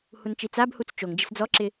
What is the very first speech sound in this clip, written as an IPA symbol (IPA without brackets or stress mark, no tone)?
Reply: h